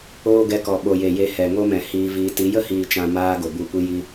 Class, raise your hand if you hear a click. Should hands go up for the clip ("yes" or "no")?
no